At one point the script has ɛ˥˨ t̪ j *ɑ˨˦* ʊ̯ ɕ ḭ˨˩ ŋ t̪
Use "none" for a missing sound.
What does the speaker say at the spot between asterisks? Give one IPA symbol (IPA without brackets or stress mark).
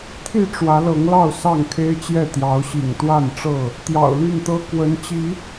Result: ɑ˨˦